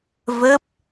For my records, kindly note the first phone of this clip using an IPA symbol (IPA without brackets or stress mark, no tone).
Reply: v